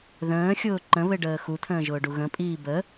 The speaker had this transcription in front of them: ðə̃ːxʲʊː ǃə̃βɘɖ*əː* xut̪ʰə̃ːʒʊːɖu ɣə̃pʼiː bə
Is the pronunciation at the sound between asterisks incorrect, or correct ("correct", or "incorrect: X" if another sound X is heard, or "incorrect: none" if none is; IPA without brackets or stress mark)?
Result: correct